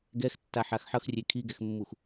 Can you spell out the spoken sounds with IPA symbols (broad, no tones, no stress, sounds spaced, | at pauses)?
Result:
ɡ ɛ x tː a ħ a x ħ ʌ x rʲ e kʰ i ɡ ɛ x mː u x